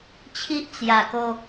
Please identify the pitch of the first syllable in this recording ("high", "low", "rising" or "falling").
high